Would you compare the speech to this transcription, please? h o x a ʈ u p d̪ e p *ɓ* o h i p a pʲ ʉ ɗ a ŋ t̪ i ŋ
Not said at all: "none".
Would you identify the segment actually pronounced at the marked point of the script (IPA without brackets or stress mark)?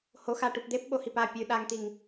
ɓ